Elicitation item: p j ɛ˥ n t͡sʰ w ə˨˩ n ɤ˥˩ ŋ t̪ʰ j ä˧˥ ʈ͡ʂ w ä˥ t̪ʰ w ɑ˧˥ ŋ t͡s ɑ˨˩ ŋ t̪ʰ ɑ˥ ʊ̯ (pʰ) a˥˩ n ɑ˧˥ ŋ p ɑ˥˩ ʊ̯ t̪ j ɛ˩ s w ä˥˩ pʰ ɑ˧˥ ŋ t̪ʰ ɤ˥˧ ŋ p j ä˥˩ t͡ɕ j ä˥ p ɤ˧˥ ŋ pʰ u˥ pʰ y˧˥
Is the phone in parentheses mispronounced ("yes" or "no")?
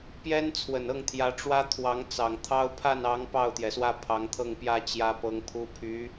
no